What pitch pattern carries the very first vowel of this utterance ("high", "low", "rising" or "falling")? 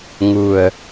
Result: low